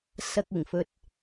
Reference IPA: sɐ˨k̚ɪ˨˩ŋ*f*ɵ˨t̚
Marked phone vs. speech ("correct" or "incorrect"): correct